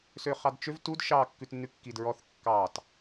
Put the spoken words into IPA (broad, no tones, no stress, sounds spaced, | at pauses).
s ø χ ɑ d t͡ʃ ø v t u d ʃ ɑ kː ʉ t nː ʉ kː i d ɹ ɔ θ kː ɑ t